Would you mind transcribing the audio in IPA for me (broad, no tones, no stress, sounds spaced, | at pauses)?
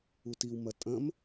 u t i w m ɐ tʼ ɐ̃ m